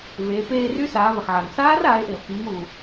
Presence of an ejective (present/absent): absent